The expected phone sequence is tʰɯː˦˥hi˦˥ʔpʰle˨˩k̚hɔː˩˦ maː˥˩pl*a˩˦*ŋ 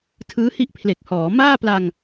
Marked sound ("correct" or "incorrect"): incorrect